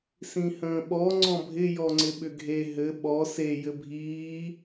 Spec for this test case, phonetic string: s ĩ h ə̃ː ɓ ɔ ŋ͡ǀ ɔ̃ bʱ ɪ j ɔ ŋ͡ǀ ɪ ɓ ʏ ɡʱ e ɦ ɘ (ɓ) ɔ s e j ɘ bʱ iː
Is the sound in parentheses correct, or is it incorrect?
correct